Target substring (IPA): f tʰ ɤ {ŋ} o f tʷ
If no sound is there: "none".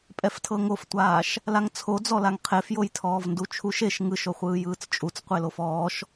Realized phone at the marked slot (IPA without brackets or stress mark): ŋ